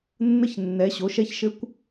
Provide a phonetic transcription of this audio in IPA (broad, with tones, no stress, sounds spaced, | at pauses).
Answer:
nː ə˧˥ ç nː ɛ˧˥ ɕ o˧˥ ʃ ɛ˥ ç ʃ ɘ˥ kʷ